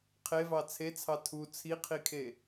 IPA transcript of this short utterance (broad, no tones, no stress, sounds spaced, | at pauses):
qʰ e v ɑ t͡sʰ e t͡sʰ ɑ tʰ u t͡sʰ i qʰ i kʰ e